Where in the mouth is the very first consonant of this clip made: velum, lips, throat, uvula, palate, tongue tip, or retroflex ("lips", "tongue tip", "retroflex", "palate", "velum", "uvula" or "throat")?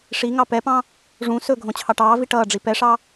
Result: retroflex